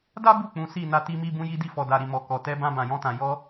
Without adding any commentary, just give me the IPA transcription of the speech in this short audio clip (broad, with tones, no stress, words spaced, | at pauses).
da˦bu˦˨ k͡pũ˨˦si˦˨ na˧ti˧mi˧ bũ˧ji˧di˧ fɔ˨da˨ɾi˨mɔ˨ kɔ˨ tɛ˧bã˧ bã˨jɔ̃˧tã˨ jɔ˧